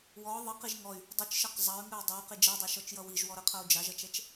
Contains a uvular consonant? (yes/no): yes